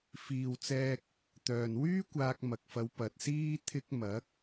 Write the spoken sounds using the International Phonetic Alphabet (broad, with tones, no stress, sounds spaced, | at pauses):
f iː˨ w t͡s ɛː˧ k̚ | t̪ œː˨ n w yː˥ kʷ aː˧ k̚ m ɐ˨ k̚ f ɐ˨˧ w p ɐ˨ t̚ s iː˥ t̪ʰ ɪ˧ k̚ m ɐ˨˥ k̚